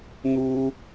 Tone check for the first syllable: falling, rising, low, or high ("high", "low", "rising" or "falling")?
high